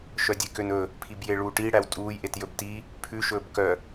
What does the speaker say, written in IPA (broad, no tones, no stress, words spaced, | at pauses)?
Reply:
ʃœdʲekønɵ | pʰibjeɭuːʈi ɽæwtʼuːj ʔetjɵbti | pʰʉ ʃɵːbkœ